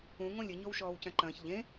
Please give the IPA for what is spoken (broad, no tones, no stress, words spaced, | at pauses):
ũ ŋõlʲɘ ɲowʃɔːwcɐ̃ǃɐ̃ːç ʎẽ